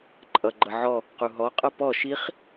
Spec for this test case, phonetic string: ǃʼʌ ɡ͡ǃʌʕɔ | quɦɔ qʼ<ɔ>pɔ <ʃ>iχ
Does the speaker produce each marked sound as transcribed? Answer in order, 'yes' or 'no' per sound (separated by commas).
no, yes